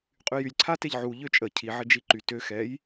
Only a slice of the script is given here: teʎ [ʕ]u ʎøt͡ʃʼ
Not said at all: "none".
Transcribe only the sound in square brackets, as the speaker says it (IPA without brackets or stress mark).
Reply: ʕ